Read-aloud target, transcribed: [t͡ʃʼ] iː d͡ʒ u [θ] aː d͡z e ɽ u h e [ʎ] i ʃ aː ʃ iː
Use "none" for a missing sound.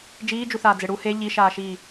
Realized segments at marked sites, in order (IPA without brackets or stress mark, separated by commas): d͡ʒ, θ, ʎ